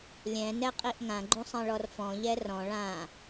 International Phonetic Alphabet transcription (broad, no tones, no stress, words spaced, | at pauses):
lʲɛ̃nɛqʼiʔ ŋãɡ͡ǃũsˤɛ̃ɭɔr fɔ̃ʎɛ rɔ̃ ɭã